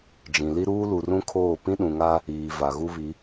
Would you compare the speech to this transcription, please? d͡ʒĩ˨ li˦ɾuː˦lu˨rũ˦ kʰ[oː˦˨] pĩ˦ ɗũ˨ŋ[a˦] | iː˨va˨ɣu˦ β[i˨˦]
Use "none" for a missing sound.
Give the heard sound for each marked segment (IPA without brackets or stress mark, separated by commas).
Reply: oː˦˨, a˦, i˨˦